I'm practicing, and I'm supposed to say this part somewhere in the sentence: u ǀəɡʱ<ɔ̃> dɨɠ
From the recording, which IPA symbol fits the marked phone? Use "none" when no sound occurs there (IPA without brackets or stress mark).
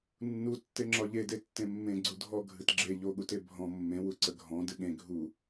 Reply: ɔ̃